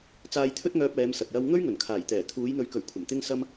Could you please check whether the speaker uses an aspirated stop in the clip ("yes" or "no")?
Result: yes